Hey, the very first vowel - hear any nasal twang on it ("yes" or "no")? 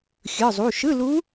no